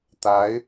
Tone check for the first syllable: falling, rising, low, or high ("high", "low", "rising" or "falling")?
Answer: rising